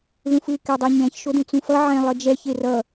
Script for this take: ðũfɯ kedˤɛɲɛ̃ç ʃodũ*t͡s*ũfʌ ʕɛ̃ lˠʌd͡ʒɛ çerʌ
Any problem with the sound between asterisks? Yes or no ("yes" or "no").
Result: no